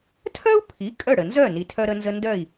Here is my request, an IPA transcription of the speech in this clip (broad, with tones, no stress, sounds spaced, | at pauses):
tʰ œ˥ u̯ pʰ i˩˥ kʼ œ˥˩ ɽ ə˩ n z œ˥˩ n i˩ tʰ œ˧ ɾ ə˧ n z ə˧ n d œ˥˩ i̯